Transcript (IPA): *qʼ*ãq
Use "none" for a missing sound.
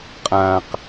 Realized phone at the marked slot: qʼ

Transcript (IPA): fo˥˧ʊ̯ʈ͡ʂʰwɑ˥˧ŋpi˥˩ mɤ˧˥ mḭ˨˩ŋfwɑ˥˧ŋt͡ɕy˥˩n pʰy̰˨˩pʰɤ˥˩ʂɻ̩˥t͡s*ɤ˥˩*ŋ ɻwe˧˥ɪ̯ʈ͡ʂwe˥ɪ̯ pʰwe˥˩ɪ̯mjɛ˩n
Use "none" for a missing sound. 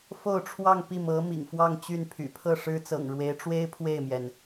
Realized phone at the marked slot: ɤ̰˨˩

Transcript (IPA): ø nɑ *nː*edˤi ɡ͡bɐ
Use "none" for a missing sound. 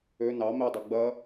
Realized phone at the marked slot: m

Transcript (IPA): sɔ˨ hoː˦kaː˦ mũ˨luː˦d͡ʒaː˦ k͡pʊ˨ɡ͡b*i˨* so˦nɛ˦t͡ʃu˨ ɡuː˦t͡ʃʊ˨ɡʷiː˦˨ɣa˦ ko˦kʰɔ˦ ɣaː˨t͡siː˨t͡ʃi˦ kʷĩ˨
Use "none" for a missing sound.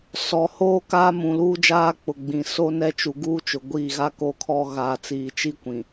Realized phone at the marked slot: ĩ˨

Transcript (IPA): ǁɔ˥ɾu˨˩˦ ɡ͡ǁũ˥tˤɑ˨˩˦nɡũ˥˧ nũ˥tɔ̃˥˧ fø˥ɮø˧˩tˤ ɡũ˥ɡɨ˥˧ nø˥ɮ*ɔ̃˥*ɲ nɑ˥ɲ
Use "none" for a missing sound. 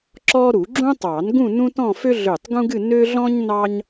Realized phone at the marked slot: ɔ̃˥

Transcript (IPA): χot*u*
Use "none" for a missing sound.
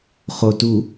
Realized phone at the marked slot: u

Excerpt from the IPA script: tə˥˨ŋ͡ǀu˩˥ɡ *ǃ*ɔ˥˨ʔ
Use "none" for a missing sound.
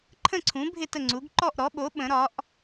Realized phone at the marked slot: ǃ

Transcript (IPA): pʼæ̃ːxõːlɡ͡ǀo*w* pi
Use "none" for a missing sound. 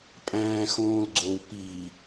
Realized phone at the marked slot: w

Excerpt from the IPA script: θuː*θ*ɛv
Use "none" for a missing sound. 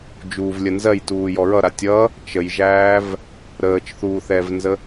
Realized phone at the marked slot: θ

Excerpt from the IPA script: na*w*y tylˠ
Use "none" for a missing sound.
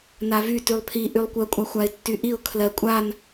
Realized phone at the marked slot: v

